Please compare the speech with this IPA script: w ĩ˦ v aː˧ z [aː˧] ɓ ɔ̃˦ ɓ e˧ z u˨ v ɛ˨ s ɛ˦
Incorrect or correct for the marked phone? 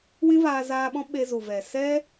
correct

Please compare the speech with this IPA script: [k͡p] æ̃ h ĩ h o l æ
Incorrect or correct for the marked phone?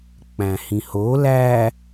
correct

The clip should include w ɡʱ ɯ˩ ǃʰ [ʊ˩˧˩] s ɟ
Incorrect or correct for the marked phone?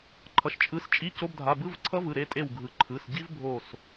incorrect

